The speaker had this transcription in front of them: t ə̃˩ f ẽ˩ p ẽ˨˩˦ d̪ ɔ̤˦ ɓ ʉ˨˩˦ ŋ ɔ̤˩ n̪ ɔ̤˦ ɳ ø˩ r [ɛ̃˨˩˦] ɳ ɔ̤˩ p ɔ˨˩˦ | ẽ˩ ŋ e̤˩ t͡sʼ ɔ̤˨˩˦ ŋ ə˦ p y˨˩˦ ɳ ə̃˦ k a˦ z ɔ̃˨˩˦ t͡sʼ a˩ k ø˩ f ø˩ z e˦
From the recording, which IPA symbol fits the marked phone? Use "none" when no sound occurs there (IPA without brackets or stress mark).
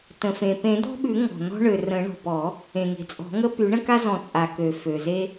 ə̃˨˩˦